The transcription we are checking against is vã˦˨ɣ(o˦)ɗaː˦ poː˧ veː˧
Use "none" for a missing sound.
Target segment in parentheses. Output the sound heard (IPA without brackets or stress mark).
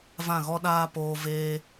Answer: ɔ˦